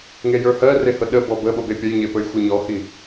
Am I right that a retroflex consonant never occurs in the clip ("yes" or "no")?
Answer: yes